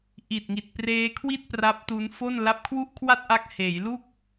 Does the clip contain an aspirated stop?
yes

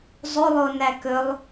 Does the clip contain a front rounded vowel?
no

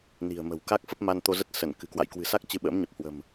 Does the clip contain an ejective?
no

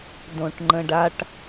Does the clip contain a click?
yes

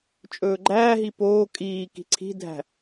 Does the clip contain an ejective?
yes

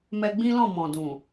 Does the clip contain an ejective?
no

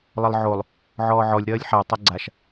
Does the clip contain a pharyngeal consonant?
yes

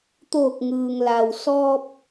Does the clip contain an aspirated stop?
no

